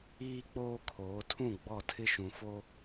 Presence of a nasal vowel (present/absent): present